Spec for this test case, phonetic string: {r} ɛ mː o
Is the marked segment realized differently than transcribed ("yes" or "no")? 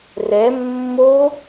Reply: no